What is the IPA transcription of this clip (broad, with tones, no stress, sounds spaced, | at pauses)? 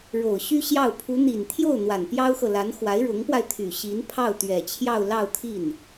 ɻ o˨˩ ʊ̯ ɕ y˥ ɕ j ɑ˥˩ ʊ̯ pʰ u˧˥ n̪ i˨˩ n t̪ʰ j o˥˩ ʊ̯ n̪ w a˨˩ n p j ɑ˥ ʊ̯ x ɤ˨ l a˧˥ n x w a˧˥ ɪ̯ ɻ ʊ˧˥ ŋ p w a˧ ɪ̯ t̪ʰ y˨˩ ɕ i˧˥ n pʰ ɑ˥˩ ʊ̯ t̪ ɥ ɛ˨˩ t͡ɕʰ j ɑ˥˧ ʊ̯ l ɑ˥˧ ʊ̯ t̪ʰ i˥˩ n